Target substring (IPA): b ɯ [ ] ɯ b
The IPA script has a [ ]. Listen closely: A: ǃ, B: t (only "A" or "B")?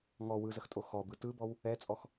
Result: B